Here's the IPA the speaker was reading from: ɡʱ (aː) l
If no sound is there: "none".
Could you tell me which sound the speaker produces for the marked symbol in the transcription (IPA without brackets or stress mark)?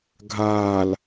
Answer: aː